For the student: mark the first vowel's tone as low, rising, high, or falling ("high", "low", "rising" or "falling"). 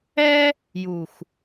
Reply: high